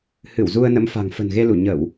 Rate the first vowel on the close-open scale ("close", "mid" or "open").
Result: close